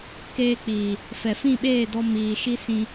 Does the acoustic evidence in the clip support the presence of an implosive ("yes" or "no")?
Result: yes